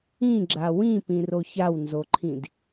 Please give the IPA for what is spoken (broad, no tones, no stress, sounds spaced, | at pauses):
ĩ ɡ͡ǁ a w ĩ p ĩ r o ç a w n z o ǃʰ ĩ d